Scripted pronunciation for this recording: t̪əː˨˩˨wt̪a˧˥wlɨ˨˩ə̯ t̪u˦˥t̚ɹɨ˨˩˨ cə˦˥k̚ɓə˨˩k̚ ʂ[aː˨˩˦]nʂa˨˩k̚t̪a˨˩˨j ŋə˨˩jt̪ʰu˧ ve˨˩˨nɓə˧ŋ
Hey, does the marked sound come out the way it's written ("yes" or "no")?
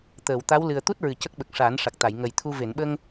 yes